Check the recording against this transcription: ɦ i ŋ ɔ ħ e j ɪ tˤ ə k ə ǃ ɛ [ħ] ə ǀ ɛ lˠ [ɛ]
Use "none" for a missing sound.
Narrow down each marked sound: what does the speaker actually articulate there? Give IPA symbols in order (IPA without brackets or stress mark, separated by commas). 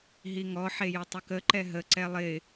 ɦ, ɪ